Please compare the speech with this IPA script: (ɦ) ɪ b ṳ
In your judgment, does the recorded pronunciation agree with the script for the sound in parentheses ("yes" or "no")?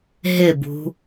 yes